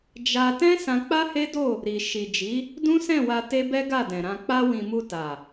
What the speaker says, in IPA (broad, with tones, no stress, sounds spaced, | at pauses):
d͡ʒ a˧ t ɛ̃˦ s ã˧ k͡p a˦ h e˦ d o˦˨ | ɾ i˨ ʃ i˨ d͡ʒ i˨˦ | d ũ˦ s ɛ̃˦˨ w a˧ t e˦ b ɛ˦ ɡ a˦˨ d ɛ̃˨ ɾ ã˨ k͡p a˧ w ĩ˨ m u˧ t a˨